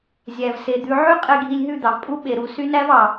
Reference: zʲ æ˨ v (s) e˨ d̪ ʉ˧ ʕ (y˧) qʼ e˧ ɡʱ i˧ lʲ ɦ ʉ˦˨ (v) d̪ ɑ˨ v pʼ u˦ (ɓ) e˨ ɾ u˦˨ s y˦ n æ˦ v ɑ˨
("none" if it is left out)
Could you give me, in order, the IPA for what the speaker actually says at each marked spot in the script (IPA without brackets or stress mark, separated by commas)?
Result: s, y˦, none, ɓ